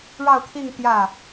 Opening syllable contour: falling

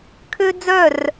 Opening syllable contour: high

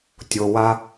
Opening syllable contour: low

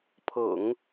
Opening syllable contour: low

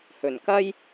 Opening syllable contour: low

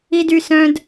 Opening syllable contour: high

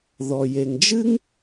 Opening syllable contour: low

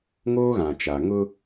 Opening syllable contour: high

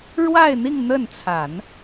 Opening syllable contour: falling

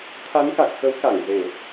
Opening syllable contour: rising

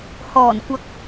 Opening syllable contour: low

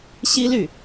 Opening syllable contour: high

